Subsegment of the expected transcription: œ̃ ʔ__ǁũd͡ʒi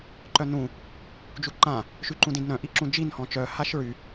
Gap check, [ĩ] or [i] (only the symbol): i